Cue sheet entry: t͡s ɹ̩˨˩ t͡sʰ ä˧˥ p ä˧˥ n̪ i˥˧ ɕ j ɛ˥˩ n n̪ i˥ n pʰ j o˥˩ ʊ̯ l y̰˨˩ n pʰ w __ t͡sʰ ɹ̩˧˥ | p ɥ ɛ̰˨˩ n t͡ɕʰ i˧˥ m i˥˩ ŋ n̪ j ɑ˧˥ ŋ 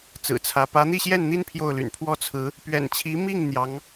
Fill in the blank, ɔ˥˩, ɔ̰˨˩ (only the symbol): ɔ˥˩